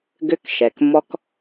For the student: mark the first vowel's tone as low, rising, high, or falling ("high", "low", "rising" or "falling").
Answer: high